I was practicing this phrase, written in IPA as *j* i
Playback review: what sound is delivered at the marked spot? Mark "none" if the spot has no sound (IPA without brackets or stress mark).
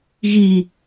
ɣ